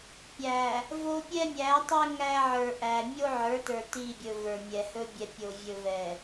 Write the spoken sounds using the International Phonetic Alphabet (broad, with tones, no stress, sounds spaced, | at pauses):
pʲ æ˨ | v o˦ pʲ ɛ˦ mʲ æ˨˦ tˤ ɛ˦ ŋ æ˦ ʕ ə˞˨ ʔ æ˨ mʲ o˦ ʕ ə˞˨˦ t ə˞˨ t i˦˨ bʲ ɵ˨ v ə˞˨ mʲ ɛ˨ h ɵ˦ bʲ ɛ˨ pʲ o˨ vʲ ɵ˨ v ɛ˨